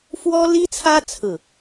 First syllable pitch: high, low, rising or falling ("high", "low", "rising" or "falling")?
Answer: high